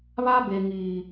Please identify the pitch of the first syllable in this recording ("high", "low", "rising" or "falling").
high